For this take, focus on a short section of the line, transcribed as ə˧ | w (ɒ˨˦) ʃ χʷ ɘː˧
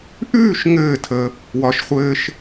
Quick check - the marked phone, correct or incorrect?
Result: correct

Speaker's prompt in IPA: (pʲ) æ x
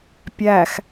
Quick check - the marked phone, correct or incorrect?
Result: correct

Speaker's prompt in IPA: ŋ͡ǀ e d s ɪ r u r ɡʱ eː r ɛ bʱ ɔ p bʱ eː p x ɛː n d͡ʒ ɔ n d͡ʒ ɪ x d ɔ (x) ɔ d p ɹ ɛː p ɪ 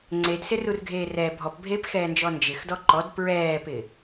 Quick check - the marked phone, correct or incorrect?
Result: incorrect: ǃ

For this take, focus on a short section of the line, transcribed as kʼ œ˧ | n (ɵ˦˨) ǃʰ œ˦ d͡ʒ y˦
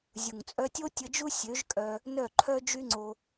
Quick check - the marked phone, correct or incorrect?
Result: incorrect: œ˦˨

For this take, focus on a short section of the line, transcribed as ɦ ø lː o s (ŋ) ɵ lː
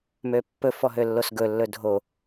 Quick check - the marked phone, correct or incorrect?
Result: incorrect: ɡ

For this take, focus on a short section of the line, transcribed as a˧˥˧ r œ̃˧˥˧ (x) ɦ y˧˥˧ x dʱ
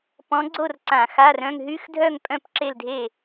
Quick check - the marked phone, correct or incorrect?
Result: incorrect: ŋ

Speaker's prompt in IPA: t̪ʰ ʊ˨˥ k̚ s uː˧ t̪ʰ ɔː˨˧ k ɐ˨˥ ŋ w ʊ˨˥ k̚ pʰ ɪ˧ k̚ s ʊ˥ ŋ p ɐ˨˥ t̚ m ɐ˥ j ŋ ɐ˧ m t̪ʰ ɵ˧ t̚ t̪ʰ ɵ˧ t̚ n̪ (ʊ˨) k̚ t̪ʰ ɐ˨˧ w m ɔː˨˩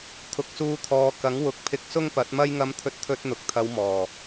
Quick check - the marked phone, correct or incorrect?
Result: correct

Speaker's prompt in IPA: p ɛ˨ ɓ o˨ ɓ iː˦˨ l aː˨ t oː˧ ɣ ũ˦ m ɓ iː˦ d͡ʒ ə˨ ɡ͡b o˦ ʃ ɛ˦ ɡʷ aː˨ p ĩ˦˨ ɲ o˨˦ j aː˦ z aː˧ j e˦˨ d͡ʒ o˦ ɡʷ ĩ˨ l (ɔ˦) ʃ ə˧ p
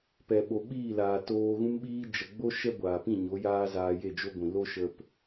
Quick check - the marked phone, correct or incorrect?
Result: incorrect: o˦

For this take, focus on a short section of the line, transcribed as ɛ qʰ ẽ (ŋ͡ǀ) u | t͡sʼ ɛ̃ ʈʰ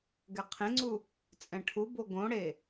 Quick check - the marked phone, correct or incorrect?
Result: correct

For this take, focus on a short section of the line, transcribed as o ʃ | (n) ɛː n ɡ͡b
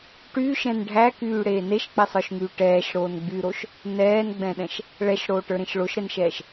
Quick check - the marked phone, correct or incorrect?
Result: correct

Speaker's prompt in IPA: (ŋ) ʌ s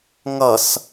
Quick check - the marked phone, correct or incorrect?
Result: correct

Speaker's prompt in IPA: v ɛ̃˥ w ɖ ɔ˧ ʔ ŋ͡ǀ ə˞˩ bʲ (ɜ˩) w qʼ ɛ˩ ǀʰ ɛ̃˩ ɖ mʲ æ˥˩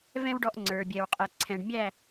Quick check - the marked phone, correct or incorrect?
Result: incorrect: ɛ˩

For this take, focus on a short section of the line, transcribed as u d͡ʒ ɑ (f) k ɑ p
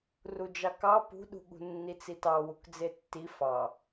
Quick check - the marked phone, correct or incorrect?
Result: incorrect: none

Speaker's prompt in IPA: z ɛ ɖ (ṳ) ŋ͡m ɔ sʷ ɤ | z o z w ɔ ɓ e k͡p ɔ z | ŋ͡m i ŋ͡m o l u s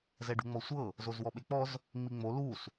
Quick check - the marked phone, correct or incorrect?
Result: correct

